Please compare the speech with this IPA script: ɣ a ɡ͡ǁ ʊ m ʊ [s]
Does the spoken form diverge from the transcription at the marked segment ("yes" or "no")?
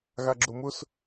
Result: no